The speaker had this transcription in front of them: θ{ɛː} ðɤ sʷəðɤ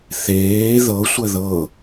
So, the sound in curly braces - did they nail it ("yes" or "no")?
no